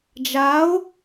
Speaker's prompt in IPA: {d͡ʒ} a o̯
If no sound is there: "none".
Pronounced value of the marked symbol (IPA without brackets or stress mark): d͡ʒ